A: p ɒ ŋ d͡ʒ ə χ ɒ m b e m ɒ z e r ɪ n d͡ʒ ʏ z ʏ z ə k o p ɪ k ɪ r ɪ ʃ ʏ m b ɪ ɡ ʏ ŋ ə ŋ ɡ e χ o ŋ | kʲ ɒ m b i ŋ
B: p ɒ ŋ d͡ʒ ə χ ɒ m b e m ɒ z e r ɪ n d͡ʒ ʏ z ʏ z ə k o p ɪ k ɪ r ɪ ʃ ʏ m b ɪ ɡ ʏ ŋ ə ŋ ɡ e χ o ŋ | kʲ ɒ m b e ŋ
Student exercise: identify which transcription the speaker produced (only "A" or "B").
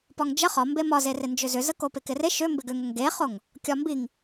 A